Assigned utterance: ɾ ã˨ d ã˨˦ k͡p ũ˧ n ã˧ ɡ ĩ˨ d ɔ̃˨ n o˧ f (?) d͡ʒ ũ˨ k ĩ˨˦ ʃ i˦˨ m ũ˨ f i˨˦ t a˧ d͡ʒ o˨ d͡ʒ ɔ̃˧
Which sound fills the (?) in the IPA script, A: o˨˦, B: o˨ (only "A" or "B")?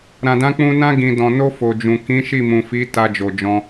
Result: B